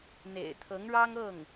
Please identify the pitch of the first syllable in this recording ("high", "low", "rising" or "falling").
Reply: low